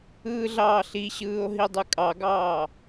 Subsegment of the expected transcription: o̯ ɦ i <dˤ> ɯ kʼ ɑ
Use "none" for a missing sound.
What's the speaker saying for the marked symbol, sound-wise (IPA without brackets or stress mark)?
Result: dˤ